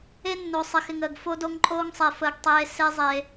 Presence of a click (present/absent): present